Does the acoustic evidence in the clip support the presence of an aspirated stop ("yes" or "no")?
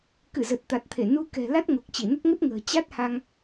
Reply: yes